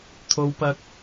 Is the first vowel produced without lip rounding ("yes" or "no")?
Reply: no